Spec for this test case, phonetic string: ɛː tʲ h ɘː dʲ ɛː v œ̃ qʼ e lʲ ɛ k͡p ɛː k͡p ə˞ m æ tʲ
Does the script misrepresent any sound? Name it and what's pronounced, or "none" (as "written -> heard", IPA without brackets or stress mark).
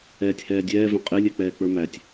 ɘː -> ɛː